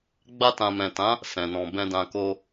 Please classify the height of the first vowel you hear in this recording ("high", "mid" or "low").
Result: low